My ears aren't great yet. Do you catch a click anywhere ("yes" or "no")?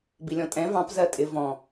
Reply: no